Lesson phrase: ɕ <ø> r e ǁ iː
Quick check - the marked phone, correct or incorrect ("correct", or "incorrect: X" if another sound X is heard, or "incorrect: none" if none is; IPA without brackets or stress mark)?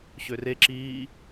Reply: correct